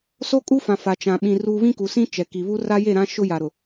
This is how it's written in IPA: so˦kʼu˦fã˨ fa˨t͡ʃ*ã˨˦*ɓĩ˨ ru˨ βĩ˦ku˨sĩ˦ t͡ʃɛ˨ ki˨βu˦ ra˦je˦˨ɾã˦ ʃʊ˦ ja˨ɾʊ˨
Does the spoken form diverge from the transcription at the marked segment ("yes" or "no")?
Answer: yes